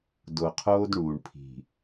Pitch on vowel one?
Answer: low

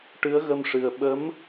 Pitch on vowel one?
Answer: rising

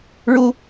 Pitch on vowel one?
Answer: high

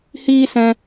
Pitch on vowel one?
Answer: high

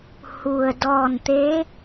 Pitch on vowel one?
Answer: low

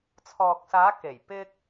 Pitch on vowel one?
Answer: low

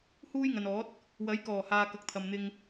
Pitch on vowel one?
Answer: high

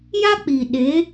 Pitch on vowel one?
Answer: high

